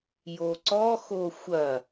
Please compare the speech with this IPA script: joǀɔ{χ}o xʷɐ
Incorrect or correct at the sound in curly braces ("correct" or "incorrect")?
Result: incorrect